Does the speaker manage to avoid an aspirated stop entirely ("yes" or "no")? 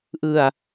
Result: yes